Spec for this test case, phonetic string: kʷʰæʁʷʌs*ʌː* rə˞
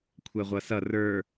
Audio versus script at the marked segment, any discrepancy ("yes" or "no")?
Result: yes